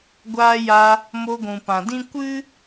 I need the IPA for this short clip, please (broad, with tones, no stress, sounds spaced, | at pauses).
ɡʷ aː˧ j a˧ | m o˧ ɡʷ ũ˨ p ã˨ d ĩ˦ kʷ ɨ˦